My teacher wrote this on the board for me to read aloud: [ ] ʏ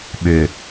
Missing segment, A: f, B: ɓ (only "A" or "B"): B